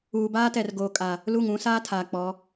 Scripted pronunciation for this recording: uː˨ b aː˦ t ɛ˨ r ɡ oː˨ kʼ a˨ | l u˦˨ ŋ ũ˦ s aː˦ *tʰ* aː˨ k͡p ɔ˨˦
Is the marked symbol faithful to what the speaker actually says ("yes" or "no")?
yes